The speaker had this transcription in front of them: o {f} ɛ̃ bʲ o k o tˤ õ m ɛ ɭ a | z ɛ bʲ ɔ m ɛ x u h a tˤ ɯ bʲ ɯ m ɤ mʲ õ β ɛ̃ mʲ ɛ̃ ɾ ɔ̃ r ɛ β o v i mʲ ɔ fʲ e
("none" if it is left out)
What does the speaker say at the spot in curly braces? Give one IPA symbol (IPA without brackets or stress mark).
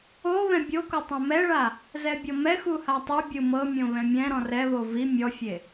β